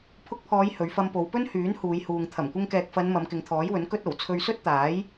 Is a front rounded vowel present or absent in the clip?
present